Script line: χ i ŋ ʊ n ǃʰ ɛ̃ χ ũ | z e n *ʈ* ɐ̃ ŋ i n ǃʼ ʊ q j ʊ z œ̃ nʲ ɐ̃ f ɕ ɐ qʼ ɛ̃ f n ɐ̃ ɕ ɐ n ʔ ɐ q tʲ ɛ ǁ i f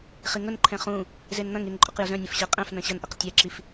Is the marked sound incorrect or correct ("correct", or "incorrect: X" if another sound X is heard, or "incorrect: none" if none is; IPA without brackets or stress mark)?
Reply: incorrect: n̪